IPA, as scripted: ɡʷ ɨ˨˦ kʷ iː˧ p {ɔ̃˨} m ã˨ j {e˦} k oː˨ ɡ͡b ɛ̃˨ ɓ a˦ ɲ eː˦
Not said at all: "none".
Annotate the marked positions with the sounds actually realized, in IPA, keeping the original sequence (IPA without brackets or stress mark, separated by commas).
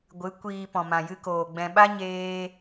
ɔ̃˨, ɨ˦